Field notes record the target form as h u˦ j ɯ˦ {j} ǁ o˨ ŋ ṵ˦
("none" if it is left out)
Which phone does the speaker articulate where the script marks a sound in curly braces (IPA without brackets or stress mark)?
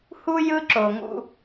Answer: none